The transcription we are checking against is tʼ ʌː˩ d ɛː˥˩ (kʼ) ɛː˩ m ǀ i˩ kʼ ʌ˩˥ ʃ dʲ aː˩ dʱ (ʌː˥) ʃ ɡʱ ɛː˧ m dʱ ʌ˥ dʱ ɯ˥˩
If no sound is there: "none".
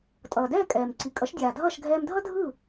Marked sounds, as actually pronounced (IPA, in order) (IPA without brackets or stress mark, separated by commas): kʼ, ʌː˥˩